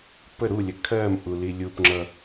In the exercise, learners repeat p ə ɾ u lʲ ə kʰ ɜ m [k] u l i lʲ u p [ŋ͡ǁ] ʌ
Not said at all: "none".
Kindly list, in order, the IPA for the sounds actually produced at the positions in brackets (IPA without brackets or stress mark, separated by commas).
ʔ, ŋ͡ǁ